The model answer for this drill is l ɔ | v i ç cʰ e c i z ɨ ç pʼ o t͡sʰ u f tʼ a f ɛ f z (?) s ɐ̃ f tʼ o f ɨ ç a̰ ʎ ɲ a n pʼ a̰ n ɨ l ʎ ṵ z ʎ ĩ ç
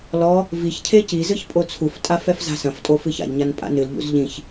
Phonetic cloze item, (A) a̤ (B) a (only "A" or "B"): A